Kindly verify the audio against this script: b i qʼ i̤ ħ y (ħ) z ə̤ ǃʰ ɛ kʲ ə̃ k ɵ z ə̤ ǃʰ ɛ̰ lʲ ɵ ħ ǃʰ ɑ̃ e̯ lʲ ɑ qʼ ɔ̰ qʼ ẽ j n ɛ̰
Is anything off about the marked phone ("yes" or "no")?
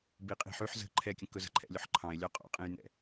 no